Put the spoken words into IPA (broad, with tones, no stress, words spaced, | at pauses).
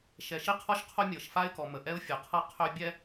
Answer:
ʃɛ˨ʃi˦qʰɔ˦ʃ qʰo˦mʲɤ˨ʃ fa˦ɪ̯kɔ˨ mə˨ ʔɛ˦ʊ̯fʲə˨qʰɤ˦ qʰø˦bʲɛ˦